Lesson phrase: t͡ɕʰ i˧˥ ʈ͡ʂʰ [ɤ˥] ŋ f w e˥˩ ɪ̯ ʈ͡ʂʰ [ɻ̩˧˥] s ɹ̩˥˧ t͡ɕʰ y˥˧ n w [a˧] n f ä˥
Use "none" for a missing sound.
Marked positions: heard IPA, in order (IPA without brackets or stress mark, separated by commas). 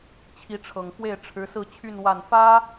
ɤ˨˩, ɻ̩˧˥, a˥˩